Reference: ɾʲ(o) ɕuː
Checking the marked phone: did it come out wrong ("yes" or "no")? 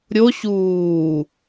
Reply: no